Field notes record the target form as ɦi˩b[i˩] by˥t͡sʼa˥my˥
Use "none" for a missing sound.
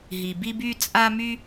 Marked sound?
i˥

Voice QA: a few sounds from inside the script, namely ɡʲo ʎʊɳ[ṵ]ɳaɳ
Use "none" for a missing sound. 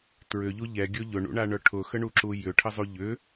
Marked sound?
ṵ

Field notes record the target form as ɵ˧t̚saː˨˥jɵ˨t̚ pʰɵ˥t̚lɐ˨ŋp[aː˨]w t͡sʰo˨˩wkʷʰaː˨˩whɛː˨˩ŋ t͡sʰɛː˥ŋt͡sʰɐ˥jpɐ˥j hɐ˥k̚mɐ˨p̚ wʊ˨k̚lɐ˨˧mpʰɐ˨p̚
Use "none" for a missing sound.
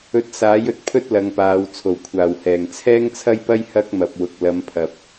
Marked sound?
aː˨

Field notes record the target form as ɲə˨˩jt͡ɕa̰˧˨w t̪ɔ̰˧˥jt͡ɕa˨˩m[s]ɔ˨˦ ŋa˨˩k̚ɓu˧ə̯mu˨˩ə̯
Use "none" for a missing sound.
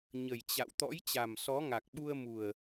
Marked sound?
s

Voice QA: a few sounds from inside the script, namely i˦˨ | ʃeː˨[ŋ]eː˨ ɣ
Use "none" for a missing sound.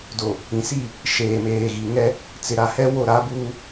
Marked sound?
m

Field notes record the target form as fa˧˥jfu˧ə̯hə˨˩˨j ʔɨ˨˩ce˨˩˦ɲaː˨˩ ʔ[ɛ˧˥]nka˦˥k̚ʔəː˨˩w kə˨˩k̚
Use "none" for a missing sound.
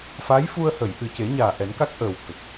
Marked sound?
ɛ˨˩˦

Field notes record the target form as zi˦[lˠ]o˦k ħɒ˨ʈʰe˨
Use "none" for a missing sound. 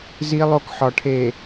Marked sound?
lˠ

